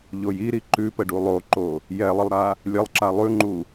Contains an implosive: no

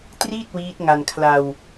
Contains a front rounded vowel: no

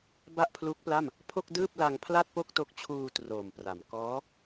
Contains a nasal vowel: no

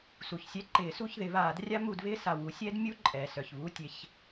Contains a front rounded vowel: yes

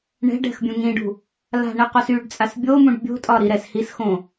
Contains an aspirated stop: no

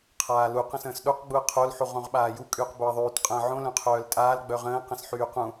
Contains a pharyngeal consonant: yes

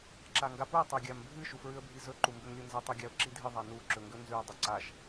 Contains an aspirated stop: no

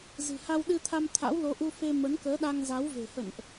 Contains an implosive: yes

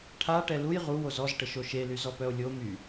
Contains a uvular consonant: yes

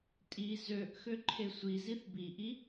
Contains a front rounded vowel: yes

